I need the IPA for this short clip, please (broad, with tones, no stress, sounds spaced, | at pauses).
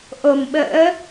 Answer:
ʔ o˨˩ m ɓ ə̰ː˧˥